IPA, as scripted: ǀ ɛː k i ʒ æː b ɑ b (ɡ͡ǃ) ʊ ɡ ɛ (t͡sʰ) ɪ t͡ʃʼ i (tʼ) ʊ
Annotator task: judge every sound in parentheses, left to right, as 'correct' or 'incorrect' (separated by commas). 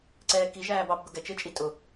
incorrect, incorrect, correct